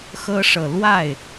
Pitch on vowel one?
high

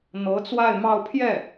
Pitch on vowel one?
rising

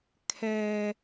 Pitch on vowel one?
low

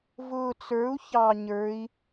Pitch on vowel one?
low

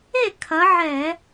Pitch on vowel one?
falling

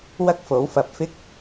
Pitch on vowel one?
high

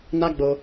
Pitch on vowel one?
high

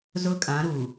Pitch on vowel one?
high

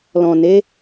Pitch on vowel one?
low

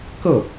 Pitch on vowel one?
falling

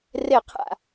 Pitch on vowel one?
falling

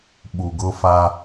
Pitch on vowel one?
low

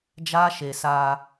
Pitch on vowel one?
high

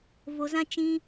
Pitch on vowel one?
low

